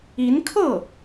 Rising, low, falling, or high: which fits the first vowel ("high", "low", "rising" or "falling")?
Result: rising